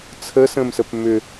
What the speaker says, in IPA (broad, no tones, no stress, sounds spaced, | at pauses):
t͡sʰ ə s ə̃ m s ə p m ʏ